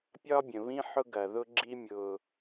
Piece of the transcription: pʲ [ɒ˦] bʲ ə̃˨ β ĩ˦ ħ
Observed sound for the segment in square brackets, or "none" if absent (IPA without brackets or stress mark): ɒ˦